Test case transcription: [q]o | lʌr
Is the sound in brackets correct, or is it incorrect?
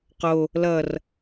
correct